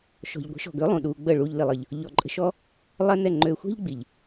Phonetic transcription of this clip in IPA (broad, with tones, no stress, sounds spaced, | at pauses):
ʃ ɔ̤˨ ʎ ɡʷ ə̤˨˦ ʃ ɔ̤˨ ɡ ø˨˦ lˠ ũ˨ ɗ uː˧ ɡ͡b ə˦˨ ɭ uː˦ ʎ l i˧ lˠ ə˧ ʎ | ʎ ɔ˧ ǃʼ ə̤˦ ʃ ɔ˦ | lˠ ɛ˦ n ɛ˦˨ ŋ͡ǃ øː˧ xʷ ɛ̤˦ ʎ ɡ͡b i˨ ʎ